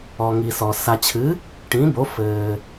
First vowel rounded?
yes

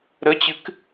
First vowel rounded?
no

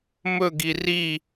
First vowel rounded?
yes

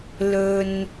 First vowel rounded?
yes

